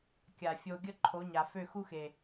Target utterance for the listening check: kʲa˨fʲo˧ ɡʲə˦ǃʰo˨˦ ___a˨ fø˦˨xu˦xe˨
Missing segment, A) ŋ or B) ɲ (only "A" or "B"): B